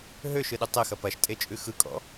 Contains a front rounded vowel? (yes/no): yes